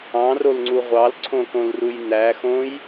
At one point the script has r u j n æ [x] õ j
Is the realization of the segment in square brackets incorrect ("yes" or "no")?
no